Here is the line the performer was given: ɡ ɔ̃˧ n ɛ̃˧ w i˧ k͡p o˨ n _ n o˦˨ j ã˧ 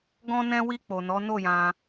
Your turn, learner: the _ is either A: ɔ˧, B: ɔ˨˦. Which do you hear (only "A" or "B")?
B